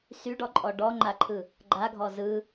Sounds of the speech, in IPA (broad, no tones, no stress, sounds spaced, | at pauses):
s y ɖ ɔ ǃʼ ɔ ɖ ɔ ŋ͡ǃ a ǃʰ ɯ | ɡ͡ǃ a ɡʱ ɔ z ɯ